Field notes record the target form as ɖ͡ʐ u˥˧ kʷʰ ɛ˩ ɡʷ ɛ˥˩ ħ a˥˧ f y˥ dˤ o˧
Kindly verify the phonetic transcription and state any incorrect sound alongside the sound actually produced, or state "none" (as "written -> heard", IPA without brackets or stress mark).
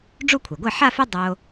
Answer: none